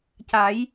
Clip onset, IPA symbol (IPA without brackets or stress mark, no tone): c